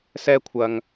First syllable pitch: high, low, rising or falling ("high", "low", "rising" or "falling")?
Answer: high